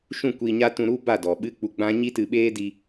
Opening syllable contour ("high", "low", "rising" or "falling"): falling